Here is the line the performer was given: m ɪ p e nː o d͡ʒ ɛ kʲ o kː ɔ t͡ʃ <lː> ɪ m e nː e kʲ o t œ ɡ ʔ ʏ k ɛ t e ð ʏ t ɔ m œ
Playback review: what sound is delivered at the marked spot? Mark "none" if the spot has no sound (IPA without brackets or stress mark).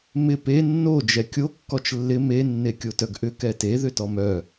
lː